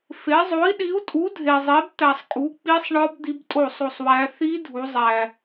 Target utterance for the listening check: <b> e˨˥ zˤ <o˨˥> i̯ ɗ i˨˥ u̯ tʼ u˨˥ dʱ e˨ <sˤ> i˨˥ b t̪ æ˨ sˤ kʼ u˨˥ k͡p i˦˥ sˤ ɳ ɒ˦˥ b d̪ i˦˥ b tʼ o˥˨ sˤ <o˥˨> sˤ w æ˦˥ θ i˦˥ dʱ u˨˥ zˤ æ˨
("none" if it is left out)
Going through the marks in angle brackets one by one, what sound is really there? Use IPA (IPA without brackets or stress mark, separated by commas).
f, o˨˥, zˤ, o˥˨